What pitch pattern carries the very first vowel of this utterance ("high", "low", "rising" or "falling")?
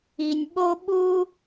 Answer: low